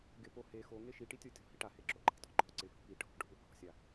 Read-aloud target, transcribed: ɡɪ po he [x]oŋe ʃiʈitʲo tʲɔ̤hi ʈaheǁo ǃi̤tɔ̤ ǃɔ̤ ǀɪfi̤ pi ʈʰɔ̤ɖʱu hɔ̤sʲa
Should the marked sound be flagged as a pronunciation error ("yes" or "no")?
no